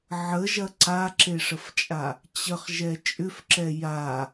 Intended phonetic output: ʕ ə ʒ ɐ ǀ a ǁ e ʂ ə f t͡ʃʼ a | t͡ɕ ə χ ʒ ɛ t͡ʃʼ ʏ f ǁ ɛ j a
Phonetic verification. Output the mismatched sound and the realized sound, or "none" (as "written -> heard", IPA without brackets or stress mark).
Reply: none